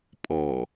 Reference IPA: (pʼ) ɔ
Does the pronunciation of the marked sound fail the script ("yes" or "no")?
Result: no